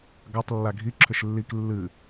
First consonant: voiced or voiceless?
voiced